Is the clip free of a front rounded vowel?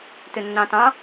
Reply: no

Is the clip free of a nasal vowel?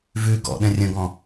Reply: no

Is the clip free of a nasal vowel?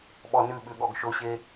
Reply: yes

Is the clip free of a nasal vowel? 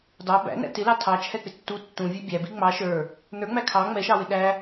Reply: no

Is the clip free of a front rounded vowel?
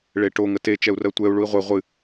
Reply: yes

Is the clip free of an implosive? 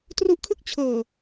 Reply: yes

